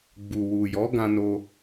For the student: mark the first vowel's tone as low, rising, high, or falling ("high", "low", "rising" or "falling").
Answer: low